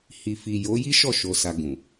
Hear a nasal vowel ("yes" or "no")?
yes